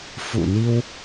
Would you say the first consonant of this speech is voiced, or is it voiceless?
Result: voiceless